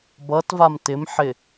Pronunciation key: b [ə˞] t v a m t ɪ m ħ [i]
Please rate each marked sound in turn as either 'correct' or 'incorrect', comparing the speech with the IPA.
incorrect: ʌ, incorrect: ɪ

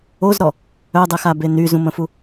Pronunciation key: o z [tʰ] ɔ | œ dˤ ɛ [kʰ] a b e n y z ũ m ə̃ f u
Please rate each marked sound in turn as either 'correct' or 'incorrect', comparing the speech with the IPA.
incorrect: ɾ, incorrect: x

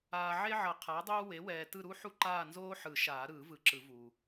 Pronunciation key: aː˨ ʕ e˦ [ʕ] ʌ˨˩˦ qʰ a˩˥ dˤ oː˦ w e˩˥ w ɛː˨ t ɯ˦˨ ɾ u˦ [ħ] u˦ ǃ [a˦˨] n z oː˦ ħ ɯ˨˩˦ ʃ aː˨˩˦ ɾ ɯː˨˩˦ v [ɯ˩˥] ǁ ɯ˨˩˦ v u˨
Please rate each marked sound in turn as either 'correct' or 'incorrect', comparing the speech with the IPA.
correct, correct, incorrect: aː˦˨, correct

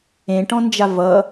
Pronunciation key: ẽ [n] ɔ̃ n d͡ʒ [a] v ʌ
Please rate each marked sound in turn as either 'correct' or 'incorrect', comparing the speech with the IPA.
incorrect: ʈ, correct

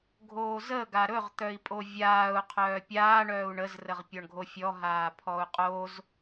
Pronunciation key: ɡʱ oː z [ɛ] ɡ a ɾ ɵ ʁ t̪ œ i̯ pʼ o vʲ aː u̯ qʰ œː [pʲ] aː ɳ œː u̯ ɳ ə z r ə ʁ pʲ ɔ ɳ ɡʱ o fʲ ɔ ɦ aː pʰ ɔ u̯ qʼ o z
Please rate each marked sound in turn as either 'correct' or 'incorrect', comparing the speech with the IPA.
incorrect: ə, correct

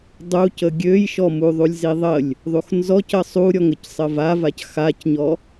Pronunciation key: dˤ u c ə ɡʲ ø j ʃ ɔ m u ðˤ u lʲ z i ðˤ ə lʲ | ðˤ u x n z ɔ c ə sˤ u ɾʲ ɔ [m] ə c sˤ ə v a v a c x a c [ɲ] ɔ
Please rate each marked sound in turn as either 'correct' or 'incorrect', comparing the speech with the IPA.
incorrect: ŋ, correct

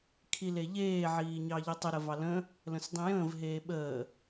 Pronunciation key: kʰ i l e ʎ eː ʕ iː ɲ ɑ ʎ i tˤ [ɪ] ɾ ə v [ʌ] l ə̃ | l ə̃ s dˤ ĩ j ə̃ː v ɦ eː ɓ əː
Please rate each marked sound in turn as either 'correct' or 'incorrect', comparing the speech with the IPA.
incorrect: ə, incorrect: ɑ

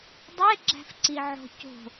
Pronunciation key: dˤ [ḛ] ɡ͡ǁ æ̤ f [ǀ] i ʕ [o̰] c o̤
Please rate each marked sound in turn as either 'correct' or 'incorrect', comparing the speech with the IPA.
incorrect: e, correct, incorrect: o̤

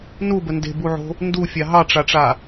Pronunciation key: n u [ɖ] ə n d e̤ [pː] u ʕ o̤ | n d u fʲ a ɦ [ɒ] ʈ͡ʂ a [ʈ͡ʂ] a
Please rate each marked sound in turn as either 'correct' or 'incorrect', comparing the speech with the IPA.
incorrect: b, incorrect: b, incorrect: ɑ, correct

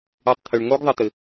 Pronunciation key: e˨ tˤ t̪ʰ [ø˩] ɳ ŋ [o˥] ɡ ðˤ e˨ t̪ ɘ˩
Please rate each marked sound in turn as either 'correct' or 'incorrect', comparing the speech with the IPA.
correct, correct

